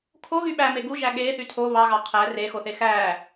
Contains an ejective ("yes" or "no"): no